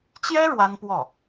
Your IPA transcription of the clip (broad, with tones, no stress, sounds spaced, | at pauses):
t͡ɕ j ɛ˥ ɻ w a˥ n p w ɔ˥˩